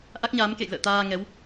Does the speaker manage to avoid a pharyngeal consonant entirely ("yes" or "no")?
yes